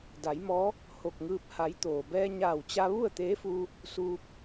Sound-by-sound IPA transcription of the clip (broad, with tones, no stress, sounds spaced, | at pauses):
d a˩˧ j m ɔː˧˥ | h o˧˩ k̚ ŋ ɯː˧ p̚ h a˩˧ j t̪ oː˩ b ɛː˧ ɲ aː˧˩ w t͡ɕ a˧ ʋ u˥˨ ə̯ t̪ eː˧˥ f uː˧ | s uː˧ p̚